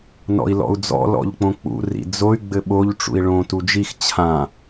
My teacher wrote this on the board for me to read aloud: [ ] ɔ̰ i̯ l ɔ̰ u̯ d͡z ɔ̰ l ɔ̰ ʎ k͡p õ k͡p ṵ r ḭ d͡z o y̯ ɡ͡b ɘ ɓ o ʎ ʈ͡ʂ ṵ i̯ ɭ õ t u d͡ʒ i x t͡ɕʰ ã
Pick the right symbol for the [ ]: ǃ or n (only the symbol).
n